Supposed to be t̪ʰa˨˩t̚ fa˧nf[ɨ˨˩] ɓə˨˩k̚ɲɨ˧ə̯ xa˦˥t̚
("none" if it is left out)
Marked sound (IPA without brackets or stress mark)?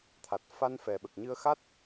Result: ɛ˨˩